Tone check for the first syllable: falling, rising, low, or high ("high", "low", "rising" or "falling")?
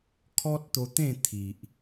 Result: high